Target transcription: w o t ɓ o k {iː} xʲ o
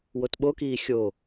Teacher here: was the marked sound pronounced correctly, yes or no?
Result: yes